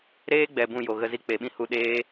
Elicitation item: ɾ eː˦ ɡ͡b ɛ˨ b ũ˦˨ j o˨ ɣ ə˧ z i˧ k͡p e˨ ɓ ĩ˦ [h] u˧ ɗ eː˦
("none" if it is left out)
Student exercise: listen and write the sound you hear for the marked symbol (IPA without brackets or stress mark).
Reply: h